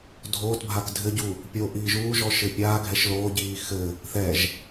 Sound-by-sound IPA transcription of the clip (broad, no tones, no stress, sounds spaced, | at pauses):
dʱ oː t bʱ a k dʱ ɘ ɟ u | pʲ o ʔ iː ʒ uː ʒ ɔ ʃ ɘ pʲ aː ɡʱ ɛ ʃ l oː ɟ iː x ɘ | θ ɛ ʒ